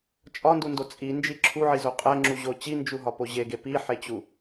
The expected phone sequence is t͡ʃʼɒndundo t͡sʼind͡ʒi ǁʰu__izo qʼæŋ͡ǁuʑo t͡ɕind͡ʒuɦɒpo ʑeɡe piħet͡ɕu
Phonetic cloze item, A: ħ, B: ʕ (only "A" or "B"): B